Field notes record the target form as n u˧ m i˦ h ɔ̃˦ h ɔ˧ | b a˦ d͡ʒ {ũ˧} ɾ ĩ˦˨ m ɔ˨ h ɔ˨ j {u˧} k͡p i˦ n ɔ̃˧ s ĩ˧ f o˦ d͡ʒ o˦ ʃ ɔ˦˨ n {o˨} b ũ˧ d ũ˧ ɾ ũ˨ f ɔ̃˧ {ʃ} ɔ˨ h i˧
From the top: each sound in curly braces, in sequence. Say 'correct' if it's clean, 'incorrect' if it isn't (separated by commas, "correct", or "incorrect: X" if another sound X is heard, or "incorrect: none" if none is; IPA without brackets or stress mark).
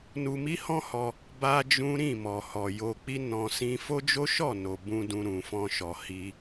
incorrect: ũ˦, incorrect: o˧, correct, correct